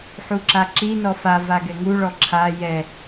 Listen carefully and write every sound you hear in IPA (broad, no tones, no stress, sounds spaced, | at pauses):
ħ u ǁ a ǁ i n ɔ f a v a ɡ ɛ ŋ u ɭ ɔ ǁʰ a j ɛ